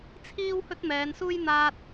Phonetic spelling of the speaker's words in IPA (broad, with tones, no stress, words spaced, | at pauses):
t͡sʰiː˥w hɵ˥t̚mɛː˨˧nsuː˥j n̪aː˧t̚